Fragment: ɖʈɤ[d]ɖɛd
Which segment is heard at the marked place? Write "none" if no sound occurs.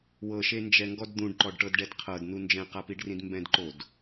d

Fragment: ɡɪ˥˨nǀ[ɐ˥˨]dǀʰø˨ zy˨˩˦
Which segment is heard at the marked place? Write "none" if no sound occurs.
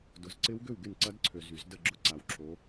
ɐ˦˥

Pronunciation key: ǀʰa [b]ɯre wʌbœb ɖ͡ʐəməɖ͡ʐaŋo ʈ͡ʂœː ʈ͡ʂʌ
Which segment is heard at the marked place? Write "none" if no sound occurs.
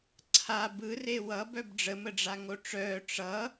b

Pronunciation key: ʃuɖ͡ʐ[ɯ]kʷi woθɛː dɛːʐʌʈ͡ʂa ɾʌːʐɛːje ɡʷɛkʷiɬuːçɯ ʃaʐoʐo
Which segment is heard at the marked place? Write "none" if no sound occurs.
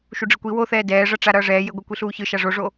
ɯ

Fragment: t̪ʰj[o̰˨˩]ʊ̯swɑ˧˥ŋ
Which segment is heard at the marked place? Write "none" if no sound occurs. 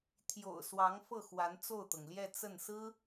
o̰˨˩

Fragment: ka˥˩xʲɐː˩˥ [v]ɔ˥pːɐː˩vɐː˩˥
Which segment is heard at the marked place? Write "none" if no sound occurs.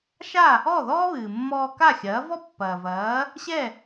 v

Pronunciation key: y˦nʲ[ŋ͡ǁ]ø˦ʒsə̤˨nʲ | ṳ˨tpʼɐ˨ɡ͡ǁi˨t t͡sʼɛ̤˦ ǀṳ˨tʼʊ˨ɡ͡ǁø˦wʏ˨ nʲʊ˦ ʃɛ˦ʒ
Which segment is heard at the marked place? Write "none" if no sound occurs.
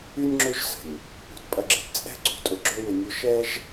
ŋ͡ǁ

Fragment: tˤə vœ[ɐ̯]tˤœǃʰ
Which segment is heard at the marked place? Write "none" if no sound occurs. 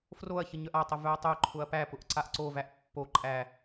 ɐ̯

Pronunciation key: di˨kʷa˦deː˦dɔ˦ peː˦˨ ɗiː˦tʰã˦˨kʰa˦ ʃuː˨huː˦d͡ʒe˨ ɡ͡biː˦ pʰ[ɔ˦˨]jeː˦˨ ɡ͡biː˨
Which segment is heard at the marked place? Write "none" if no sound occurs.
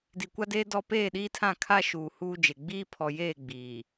ɔ˨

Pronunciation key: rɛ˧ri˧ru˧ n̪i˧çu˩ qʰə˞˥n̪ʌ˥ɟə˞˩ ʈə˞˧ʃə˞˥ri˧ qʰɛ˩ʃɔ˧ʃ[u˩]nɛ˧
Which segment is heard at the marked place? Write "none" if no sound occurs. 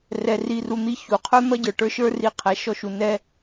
u˩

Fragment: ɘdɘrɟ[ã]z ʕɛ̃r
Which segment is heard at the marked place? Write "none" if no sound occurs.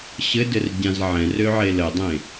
ã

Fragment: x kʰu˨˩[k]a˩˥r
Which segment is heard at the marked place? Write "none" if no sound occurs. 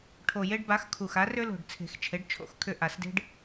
x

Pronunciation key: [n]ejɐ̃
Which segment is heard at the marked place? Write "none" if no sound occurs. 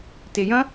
t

